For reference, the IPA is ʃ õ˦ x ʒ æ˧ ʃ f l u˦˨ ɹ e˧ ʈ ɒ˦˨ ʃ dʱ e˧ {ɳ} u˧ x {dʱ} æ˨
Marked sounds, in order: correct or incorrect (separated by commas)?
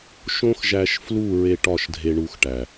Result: correct, incorrect